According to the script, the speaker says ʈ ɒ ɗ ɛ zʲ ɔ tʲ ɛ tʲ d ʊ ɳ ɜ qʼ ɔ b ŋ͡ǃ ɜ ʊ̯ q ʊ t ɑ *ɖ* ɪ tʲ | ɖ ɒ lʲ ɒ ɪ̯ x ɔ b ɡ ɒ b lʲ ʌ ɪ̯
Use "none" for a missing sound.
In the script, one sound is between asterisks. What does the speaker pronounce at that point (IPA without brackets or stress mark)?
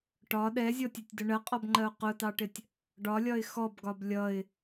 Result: ʈ